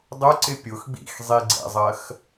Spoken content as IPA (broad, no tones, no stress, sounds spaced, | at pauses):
dˤ ʊ ǀ ɪ pʲ ʊ x ɡ͡b ḭ x zˤ i ɡ͡ǀ ɛ̰ zˤ ɜ x